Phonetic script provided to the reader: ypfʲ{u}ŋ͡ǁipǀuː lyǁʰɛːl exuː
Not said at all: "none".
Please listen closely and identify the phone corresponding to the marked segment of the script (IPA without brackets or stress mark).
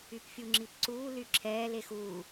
u